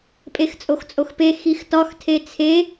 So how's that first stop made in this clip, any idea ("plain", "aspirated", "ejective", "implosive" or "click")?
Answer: ejective